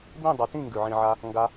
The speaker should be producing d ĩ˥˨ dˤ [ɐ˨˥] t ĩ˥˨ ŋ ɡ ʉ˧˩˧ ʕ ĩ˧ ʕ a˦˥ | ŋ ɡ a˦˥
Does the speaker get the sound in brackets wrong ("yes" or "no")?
no